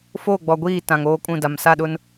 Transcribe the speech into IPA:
f oː˦˨ ɡ͡b ɔ˨ ɡʷ iː˦˨ t ã˨ ŋ oː˦ kʼ ũ˦˨ d a˨ m s a˦˨ ɗ ʊ˦ n

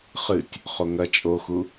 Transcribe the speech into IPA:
χ ɨ tʲ | χ o ŋ ɐ t͡ʃʼ o x u

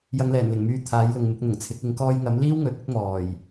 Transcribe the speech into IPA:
j ɐ˨˧ ŋ l ɛː˨˩ n l ɪ˨˩ ŋ m yː˧ t̪ʰ aː˨˥ j l ʊ˨ ŋ m ɪ˨˥ k̚ n̪ ʊ˨˩ ŋ t͡sʰ ɪ˨˥ k̚ ɪ˨˥ ŋ k ɔː˧ j ŋ ɐ˨˥ m l iː˥ w ŋ ɵ˨˥ t̚ ɪ˥ k̚ m ɔː˨˩ j

